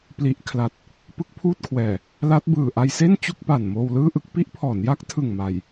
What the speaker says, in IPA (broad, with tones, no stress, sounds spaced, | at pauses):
p l i˨˩ ʔ kʰ l a˨˩ t̚ | p ɯ˦˥ k̚ pʰ uː˥˩ t̚ kʰ w ɛː˨˩ | l a˦˥ t̚ b ɯː˨˩ ʔ a˧ j s e˥˩ n t͡ɕ u˥˩ k̚ p a˨˩ n m oː˧ w l ɯː˥˩ ʔ ɯ˥˩ k̚ p i˦˥ ʔ pʰ ɔː˩˦ n j a˦˥ k̚ tʰ ɯ˨˩ ŋ m a˨˩ j